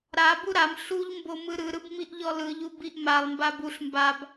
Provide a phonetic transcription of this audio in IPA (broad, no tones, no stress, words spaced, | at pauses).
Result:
ɾabu ɾam ɬuʎmbo mɯɾɯɾɯb miʔʎɔlɯʎu biʔmalˠmbab uɬ mbab